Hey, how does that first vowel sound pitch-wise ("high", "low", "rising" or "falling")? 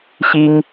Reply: high